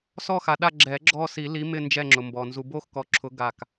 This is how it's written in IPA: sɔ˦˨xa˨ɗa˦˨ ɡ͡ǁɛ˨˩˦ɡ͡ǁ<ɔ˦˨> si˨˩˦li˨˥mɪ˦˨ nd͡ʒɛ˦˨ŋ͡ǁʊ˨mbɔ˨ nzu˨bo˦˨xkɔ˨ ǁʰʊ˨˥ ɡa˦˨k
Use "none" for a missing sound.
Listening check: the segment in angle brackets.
ɔ˦˨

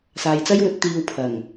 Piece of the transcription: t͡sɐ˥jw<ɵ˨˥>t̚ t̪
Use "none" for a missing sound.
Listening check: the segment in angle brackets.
ɵ˨˥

